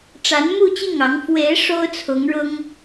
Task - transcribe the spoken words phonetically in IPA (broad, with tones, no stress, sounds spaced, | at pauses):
ʈ͡ʂ a˧˥ n m u˥˧ t͡ɕ i˥˩ ŋ ɑ˧˥ ŋ f w e˧˥ ɪ̯ ʂ o˥ ʊ̯ t͡sʰ ʊ˧˥ ŋ ɻ ʊ˥ ŋ